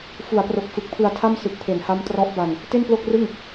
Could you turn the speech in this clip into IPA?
f u˩˦ a̯ p r o˨˩ k̚ f ɯ˨˩ k̚ pʰ ɯ˧ a̯ tʰ a˥˩ m s ɯ˨˩ k̚ pʰ e˩˦ n h a˦˥ m t r ɔ˦˥ ʔ b a˧ n | t e˥˩ n p l o˥˩ k̚ r ɯ˥˩ ŋ

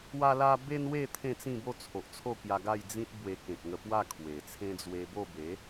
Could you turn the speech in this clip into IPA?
w a˦ l a˦ b e˦ n w e˥˧ t̪ʰ ẽ˥˧ t͡s ĩ˥˧ b o˥˧ t͡sʰ o˨ ʔ t͡sʰ o˥˧ k j a˧ ɡ a˥˧ j d͡z ĩ˦ t̚ b w e˧ k ẽ˨ k̚ ŋ ə˧ p w a˥˧ kʰ w e˨˩ t͡sʰ ẽ˦ d͡z w e˧ b o˥˧ b e˨˦

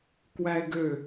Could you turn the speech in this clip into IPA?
k w æ ɪ̯ ɡ ø

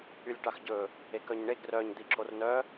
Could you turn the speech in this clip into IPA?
y lʲ ʈ ɑ x ɟ ɵ | e k œ ɲ ɳ e ɡ r œ ɲ d̪ i ǁʰ o r n œ

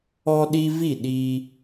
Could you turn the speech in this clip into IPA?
ɔ˦ ɗ i˦ v i˥˩ ɗ i˦

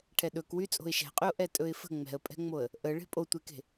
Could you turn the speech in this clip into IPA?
ʈʰ ɛ ɗ ɵ k w y t͡sʼ o̤ ɪ̯ ʃ ɛ̤ qʼ y ʊ̯ ʔ ɛ tʼ ɵ ɪ̯ f ə̤ ŋ͡m ɛ̤ ə̯ pʼ ɛ̤ ŋ͡m o ə̯ | ʔ ə ɭ e̤ pʼ o tʷ e k e̤

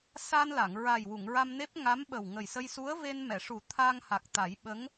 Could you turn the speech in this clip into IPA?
s a˧ n l a˨˩˨ ŋ ɹ a˨˩ j w u˨˩˨ ŋ ɹ a˧ m n e˦˥ p̚ ŋ a˧˥ m ɓ ə˨˩ w ŋ ə˨˩ j s ə˧ j s u˧˥ ə̯ v e˧ n m ɛ˨˩˨ ʂ u˨˩˦ t̪ʰ a˧ ŋ h a˨˩ k̚ t̪ a˨˩˦ j ɓ ə˧˥ ŋ

